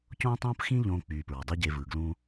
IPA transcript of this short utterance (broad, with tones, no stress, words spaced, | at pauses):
cõː˦tˤõː˦pxĩ˦ ʎõː˦ k͡pyː˨ pɹɑ˨dˤy˦ ɟe˧vɯː˨ ɡlũː˦